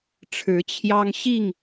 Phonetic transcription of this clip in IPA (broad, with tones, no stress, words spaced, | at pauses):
ʈ͡ʂʰɻ̩˨˦t͡ɕʰjɑ˦ŋɕi˥˨ŋ